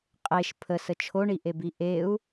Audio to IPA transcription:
qʼ e ʃ pʰ ə s ə t͡ʃʰ o ɳ i ʔ e b i ʔ e u̯

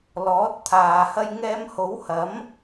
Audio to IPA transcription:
l ɔː˨˥ t̚ t̪ʰ aː˨ h ɐ˧ j ŋ ɛː˧ m h o˨˥ w h ɐ˨˥ m

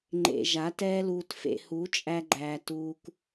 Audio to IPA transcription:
ŋ͡ǃ ḛ˨ ʒ a˨˦ t ɛː˦ l uː˧ t f ḛ˧ h u˨˦ t͡ʃʼ æ˧ ɡ͡ǃ æː˨ t uː˧ k

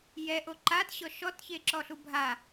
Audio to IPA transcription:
j ɛ ʔ o ǃ a t ɕ ɔ ʃ ɔ t ç e ǁ ɔ ɬ u bʱ a

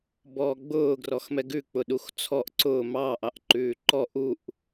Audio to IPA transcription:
b ɔː ɡ͡b ʊː ɡ r ɔ x m ɛ ɡ ʉ k͡p ʊ ɗ u x t͡sʰ ɔ ʔ ǀ ʊː m ɑ ʔ ɑ ʔ ǃ ʉː ǃ ɔ ʔ u ʔ

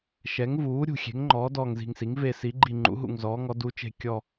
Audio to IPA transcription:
ʃ ɛ˩˥ ŋ v uː˩˥ ɾʲ ṳ˧˩ xʲ e̤˩˥ ŋ ŋ͡ǃ ɔː˩˥ d ɔː˧˩ ŋ z i̤˧˩ ŋ s i˩˥ ŋ v e˧˩ s i˩˥ ɡ͡ǃ i˧˩ ŋ͡ǃ ṵ˩˥ ɦ ṵ˧˩ ŋ z ɔː˩˥ ŋ ɔ˩˥ d u˩˥ t͡ʃ e̤˧˩ kʲ ɔ˧˩

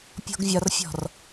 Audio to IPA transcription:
pʲ ɔ̤ ɡ vʲ ɒ r fʲ ɔ̤ r

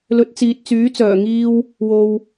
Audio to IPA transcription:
l ɵ˨˥ t̚ t͡s iː˨ t̚ t͡s yː˨˥ t͡s œː˨˩ ŋ iː˧ w | w o˨ w

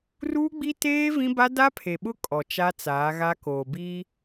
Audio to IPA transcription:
r uː˦ ɡ͡b i˦ t eː˦ v ĩ˦ b a˦ d a˦ pʰ e˨ ɓ ʊ˦ kʼ ɔ˨ t͡ʃ a˦ t͡s aː˨˦ ɣ a˦ k oː˨ b iː˦

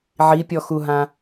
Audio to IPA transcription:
ʕ i pʲ ɔ x u ɦ ã

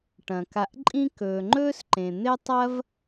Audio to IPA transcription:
ʈ ɐ̃˩ k a˨ ʔ ǃʼ ĩ˦ k ɵː˨ ŋ͡ǃ ɵː˥ s ǃ ẽ˨ n̪ e˥ tˤ ɐ˥ v

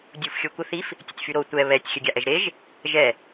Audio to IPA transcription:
dʲ u f xʲ o kʷ ə θ i f | tʲ ə tʲ f y ɾ o tʷ ɛ β ɛ tʲ xʲ ə ɡʲ a ʔ ɛ ʒ ɾ e ʒ | ʒ ɛ

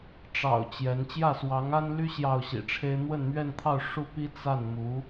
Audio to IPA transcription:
ʈ͡ʂ ɑ̰˨˩ ʊ̯ t͡ɕ j ɛ˧˥ n t͡ɕ j ä˥˩ s w ɑ˧˥ ŋ a˥ n l y˥ ɕ j ɑ˥˩ ʊ̯ ɕ ḭ˨˩ ʈ͡ʂʰ e˥ ɪ̯ n̪ w ə˥˧ n m ɥ ɛ˥˧ n t̪ʰ ɑ˥˩ ʊ̯ ʂ u˥ p i˥ t͡s a˥˩ n m u˧˥

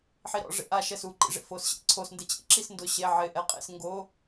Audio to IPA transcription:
ħ i ɾ ɔ̰ ʐ ḛ ʔ a ʃ ɛ s u ǃ ḭ ʐ ḛ f o s ɕ ḛ ǀʰ o s n d e t͡ɕ ḭ ǁ i s n d ʊ ɕ e ʕ ɪ ʔ ɛ qʼ ḛ s ŋ ɡ o

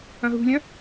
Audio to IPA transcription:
ɐ̃ ɦ ṳ lʲ ɐ̃

